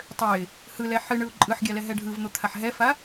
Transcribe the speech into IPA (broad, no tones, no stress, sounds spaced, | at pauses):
tˤ ø ɪ̯ | h ɯ l ɛ ħ ɨ ɳ ɯ ʊ̯ ǃʼ ɯ ħ ɡʲ a l ɛ ɦ ɛ ɖʱ ɯ v n̪ o t̪ʰ a ħ ɦ ɛ f a